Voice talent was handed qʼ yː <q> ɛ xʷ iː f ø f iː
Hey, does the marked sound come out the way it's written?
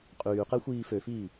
yes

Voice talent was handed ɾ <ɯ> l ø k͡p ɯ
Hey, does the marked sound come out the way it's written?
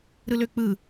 yes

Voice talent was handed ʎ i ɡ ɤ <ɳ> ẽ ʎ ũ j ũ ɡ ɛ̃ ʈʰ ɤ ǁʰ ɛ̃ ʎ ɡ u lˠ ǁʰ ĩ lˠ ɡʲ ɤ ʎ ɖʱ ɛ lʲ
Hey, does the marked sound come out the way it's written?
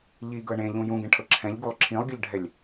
yes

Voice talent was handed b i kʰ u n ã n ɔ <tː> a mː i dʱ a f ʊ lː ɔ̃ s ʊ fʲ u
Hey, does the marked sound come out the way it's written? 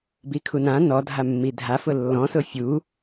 no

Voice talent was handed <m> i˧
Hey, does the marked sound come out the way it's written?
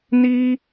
no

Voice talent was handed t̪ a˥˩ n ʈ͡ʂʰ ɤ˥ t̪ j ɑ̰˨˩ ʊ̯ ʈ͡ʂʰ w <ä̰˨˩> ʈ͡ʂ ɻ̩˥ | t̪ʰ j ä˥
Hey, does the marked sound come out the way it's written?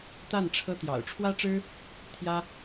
no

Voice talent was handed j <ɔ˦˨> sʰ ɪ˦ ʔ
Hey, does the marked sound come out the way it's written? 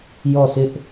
yes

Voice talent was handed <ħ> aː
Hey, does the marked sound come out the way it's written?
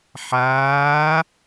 yes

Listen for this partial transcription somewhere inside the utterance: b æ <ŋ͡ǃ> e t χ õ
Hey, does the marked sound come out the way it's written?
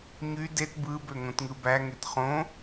no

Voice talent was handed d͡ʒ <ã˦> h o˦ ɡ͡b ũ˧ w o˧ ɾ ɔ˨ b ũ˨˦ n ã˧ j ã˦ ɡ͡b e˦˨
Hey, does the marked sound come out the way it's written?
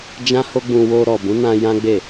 yes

